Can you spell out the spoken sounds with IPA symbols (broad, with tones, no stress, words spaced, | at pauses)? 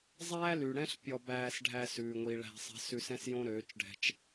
zˤæː˦ly˨ɽɛ̃˦ɬ pʲɔ˧bæː˧s ɖʱæ˧sʉː˨ŋʷi˨ ɭæ̤˧sˤɛ̤˧sʉ˧sɛ̃˦s jõ˦ɾøː˨˦t͡ʃɖʱɛ̤˧t͡ʃ